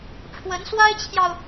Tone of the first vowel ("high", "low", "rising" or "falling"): rising